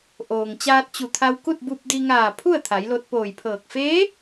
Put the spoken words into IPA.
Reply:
ʔ oː˩ ŋ t͡ɕ aː˧ t̚ t͡ɕ u˧˩ t̪ʰ a˧ w k u˥˨ t̚ b u˧ p̚ d i˧ ŋ aː˧˩ pʰ u˥˨ ə̯ t̪ʰ a˩˧ j l o˧ t̚ p oː˧˩ j pʰ ɤː˧˩ k̚ f eː˧˥

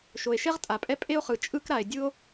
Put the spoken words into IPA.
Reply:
ʃ o˩ e̯ ʃ ɛ˥ ʁ tʼ a˩ pʼ ɛ˥ pʼ e˥ o̯ χ ɯ˩ t͡ʃʼ ɯ˥ k ɾ a˩ e̯ dʲ ɯ˥ o̯

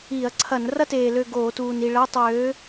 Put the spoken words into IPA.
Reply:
i˧˩˧ ɐ̯ ǀʰ ɐ˧˩˧ n r ɐ˥ t eː˨˩ l ø˦˨ ɡ oː˧˩˧ t uː˨˩ n i˨˩ ɭ ɐː˧˥˧ tˤ w øː˨˥

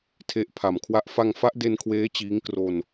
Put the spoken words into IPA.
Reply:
tʰ e˦˥ ʔ pʰ a˨˩ m kʰ w a˥˩ ʔ f a˧ ŋ f a˦˥ ʔ d e˧ n kʰ w eː˦˥ t͡ɕ iː˦˥ ŋ k r o˧ n

